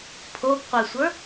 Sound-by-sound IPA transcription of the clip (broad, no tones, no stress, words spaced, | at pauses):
pʰoɡqʷɛsʷə˞